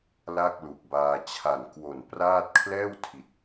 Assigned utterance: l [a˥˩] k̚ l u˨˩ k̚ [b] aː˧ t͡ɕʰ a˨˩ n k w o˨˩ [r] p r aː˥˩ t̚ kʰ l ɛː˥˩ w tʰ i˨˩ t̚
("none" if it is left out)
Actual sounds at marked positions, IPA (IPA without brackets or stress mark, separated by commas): a˥˩, b, n